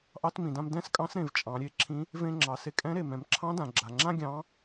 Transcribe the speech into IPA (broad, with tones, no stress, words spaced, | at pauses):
ʔɑ˧t mĩ˩dã˧m dɛ̃˧˥skʼɑ̃˧˥sɾẽ˩v t͡ʃʼɑ̃˩˧ɾʲe˧ ǁʰĩ˧˥ | vẽ˧ŋ͡ǁɑ˩ se˧kʼɛ̃˧˥ɾe˩ mɛ̃˩˧mǁʰɑ̃˧˥ dã˩ɡ͡ǁa˩ŋ͡ǁã˥ ɡʲɑ̃˧˥